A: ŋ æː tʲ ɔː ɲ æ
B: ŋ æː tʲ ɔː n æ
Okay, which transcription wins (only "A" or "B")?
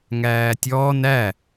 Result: B